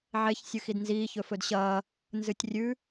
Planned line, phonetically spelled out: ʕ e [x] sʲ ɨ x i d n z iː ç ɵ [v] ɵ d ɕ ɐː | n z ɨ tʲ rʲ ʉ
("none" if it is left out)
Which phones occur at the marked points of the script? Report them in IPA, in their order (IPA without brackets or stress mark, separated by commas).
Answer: ç, f